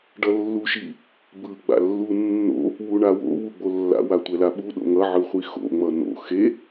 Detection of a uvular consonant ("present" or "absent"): present